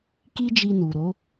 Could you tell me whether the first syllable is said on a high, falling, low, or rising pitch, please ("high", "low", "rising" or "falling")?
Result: high